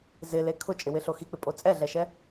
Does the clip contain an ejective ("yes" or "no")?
yes